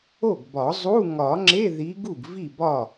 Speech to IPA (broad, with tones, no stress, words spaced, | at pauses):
o˥˩ɡbɒ˨˩˦zˤu˧˥˧ ŋɒ˨˩˦ŋ͡ǁe˧˥˧ ði˨˦ɡu˥˩ɡ vi˥˩bɒ˥˩